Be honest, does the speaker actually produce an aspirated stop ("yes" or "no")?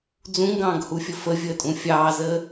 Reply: no